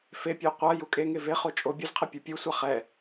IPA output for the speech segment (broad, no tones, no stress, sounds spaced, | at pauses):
f e pʲ o qʷ a j u kʼ e ŋ e v e χ o t͡ʃʼ o bʲ u z qʰ ɛ pʲ u pʲ u sʷ a χ ɛ